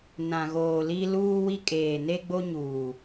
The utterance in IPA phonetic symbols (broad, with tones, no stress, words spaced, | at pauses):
nã˨ɣoː˨li˦ luː˦wi˦ kʼeː˨ne˦ɡ͡bo˦ɲuː˨